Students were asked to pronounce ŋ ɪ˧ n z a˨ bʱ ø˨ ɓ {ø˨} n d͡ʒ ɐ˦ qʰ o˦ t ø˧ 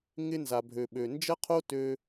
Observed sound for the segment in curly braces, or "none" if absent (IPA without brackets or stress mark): ø˨